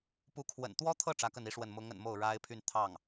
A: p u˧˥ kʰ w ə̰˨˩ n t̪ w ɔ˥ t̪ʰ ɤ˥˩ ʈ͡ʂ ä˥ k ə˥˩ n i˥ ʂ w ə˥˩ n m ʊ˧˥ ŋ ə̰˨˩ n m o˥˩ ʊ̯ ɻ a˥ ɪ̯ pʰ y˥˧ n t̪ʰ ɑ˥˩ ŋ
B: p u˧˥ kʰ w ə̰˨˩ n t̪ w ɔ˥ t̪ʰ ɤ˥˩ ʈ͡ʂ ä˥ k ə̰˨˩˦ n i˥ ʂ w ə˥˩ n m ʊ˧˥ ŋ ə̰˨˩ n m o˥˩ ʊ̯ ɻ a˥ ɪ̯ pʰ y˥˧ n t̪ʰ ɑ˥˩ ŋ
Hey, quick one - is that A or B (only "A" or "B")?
A